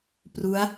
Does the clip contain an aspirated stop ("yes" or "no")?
no